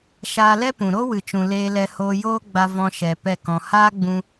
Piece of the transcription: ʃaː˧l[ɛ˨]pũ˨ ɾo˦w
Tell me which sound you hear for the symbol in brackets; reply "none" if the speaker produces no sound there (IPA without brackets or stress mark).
ɛ˦